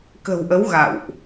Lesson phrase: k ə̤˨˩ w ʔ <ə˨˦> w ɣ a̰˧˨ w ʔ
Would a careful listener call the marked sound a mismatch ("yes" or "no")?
no